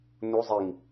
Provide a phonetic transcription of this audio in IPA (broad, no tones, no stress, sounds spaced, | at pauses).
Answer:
n u zˤ i ŋ